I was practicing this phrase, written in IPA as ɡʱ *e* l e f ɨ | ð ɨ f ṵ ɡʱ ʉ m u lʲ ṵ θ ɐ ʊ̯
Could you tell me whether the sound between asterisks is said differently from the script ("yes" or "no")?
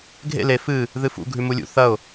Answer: yes